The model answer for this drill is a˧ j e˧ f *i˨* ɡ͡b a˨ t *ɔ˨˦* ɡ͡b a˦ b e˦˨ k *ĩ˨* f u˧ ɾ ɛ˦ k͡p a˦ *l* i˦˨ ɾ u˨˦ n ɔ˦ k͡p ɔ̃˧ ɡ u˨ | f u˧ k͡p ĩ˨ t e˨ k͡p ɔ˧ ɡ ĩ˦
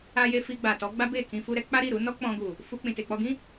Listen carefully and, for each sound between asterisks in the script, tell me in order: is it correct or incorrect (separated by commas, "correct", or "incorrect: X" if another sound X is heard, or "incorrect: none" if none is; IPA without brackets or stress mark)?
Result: incorrect: i˧, correct, incorrect: ĩ˧, incorrect: ɾ